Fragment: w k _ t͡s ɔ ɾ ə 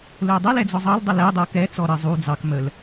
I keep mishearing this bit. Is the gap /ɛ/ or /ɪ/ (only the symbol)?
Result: ɛ